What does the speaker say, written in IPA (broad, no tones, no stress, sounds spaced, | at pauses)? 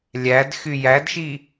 lʲ æ d x y j æ d ʃ i